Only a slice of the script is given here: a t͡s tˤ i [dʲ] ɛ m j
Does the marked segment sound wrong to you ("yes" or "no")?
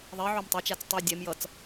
no